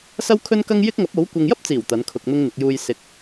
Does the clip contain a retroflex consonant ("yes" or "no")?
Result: no